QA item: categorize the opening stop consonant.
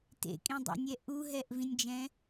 plain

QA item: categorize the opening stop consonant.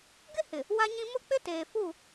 plain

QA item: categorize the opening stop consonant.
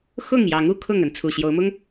aspirated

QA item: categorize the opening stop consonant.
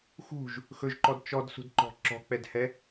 click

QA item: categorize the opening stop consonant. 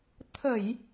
aspirated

